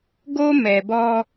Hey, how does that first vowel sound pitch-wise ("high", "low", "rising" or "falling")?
high